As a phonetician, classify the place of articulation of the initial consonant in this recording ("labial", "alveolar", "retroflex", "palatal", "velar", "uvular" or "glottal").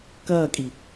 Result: velar